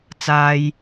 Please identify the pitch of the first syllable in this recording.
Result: high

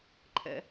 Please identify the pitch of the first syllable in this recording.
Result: low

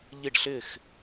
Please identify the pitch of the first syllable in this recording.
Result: falling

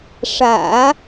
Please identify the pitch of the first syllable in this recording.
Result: low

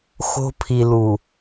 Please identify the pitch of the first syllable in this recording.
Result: high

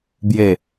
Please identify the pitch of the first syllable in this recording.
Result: low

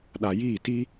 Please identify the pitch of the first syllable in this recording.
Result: low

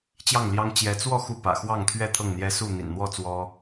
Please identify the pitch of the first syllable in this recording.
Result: falling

